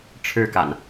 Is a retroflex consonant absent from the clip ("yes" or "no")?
no